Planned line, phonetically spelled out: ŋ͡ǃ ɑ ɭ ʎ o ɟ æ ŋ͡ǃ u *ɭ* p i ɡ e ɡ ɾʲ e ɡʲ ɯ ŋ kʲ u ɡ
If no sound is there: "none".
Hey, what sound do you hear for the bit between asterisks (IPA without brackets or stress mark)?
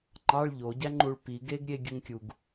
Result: ɭ